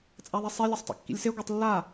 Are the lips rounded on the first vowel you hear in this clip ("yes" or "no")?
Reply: no